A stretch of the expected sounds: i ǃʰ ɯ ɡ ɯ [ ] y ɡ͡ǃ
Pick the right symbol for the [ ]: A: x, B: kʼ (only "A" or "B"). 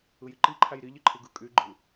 B